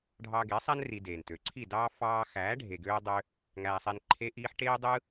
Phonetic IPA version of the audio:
ɖʱ ɑ˧ ɡ e˨˦ sˤ æ˦ n r i˧ d eː˨ n t ø˨ ǀʰ i˦˨ d ɑː˦ f ɑː˧ x æː˨˦ ɖʱ e˨ ɡ øː˦ dˤ ø˦ | ŋ æː˧ sˤ e˧ n ǃʰ e˦ ʔ iː˦ ħ ʈ eː˦ dˤ ɯː˦

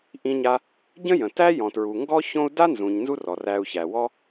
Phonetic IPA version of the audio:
ʔ ĩ˧ ɲ a˧ | ɟ ə̃˦ j ə̃˨ t æ˦ j ɔ̃˨ t ɹ u˨ ŋ ɡ ɔ˦ ç õ˦ u̯ d a˦ n z ũ˨ ɲ n z u˦ r ɔ˨ r æ˧ u̯ ç æ˨ w ɔ˦

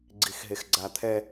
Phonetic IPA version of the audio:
ɡ͡ǀ i x ɦ e x ɡ͡ǀ a t̪ʰ ɛ

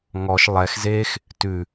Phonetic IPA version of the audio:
ŋ ɔ ʃ lˠ ɛ x z e x | t ʉ

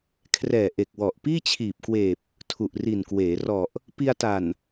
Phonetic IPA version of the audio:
kʰ r ɛː˨˩ ʔ e˨˩ k̚ w ɔ˨˩ ʔ p iː˥˩ t͡ɕʰ iː˨˩ p̚ k w eː˨˩ p̚ | tʰ u˨˩ ʔ r i˨˩ n k w eː˩˦ r ɔ˨˩ ʔ | p i˧ a̯ t a˨˩ n

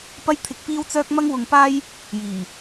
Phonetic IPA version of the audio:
p ɐ˥ j t̪ʰ ɪ˧ k̚ p iː˥ w t͡s œː˥ k̚ m ɐ˥ ŋ w ʊ˧ ŋ p aː˥ j | j iː˨˩

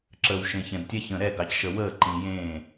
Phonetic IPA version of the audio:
ǁ əː˨ w ʃ ẽ˨ ç ɛ̃˨ d tʲ ɛ˦ ç ə̃ː˨ ɾ ɛ˦˨ ɡ ɑ˨ c ʃ ə˨ w əː˦˨ ǃ ĩ˨ j ẽː˦˨

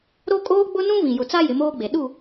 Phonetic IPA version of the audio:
ɾ o˦ kʼ oː˦ ɡ͡b ʊ˦ n ũ˦ v ĩ˨ j ʊ˨ t͡s a˦ j ɪ˨˦ m oː˦ ɡ͡b e˨ ɗ u˦˨

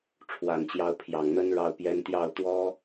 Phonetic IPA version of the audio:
ʈ͡ʂʰ w a˨˩ n t͡ɕ j ɑ˧˥ ʊ̯ pʰ j ɑ˨˩ ŋ n̪ ə˥ n ɻ ɑ˥˩ ʊ̯ p j ɛ˥ n t̪ j ɑ˥˩ ʊ̯ t̪ w ɔ˥

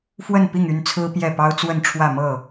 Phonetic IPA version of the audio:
f w ə˥˨ n p i˥˨ ŋ y˥˨ n t͡sʰ ɹ̩˦ p j ɛ˥˨ p ɑ˦ ʊ̯ t͡s w ə˥˨ n ʈ͡ʂʰ w ä˥˨ m ɤ˥˨

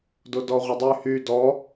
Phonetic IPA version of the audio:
d o d ɔ ʁʷ ə dˤ y h y d ɔ

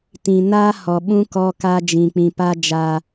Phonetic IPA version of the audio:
t ĩ˨ n aː˦ h ɔ˨ ɓ ũ˦ k ɔ˦ k a˦ d͡ʒ ĩ˨ k͡p ĩ˨ p a˦ d͡ʒ a˦

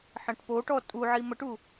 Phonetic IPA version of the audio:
ħ ɐ̃ ʈ p o ʈ ɔ tʼ u ʕ i m ə ʈ u

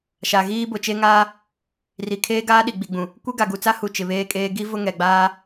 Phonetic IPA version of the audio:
ʃ a˨ ɣ iː˦ b ʊ˨ t͡ʃ e˦ ŋ aː˦ | r i˨ kʰ eː˦ ɡ aː˦ ɗ i˨ ɡ͡b i˨ ɡ͡b ũ˨ | kʷ e˦ ɡ a˨ ɡ u˨ t͡s a˦ h u˨ t͡ʃ ɪ˨ β eː˦ kʼ eː˦ ɡ i˦ v ʊ˦ ŋ ɛ˨ ɡ͡b aː˦

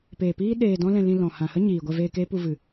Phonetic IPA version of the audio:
p eː˨ p iː˦ ɗ eː˧ d ɔ̃˦ l ɛ̃˧ l ĩ˧ l ɔ̃˨ h ã˨ h ə˦ ɲ iː˨ ɡʷ ɛ˧ v eː˧ k eː˦ p u˧ v ɨ˨

